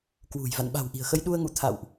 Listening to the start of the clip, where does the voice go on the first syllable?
low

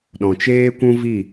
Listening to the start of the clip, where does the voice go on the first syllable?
low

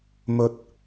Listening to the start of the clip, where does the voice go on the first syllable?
rising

